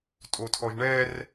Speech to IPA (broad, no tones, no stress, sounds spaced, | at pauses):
tʼ o tʰ ɔ ʒ ɳ ɛ r